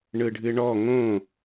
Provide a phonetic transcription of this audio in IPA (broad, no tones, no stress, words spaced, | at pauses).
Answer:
ɳɯɖʱɨɳɔ ŋõ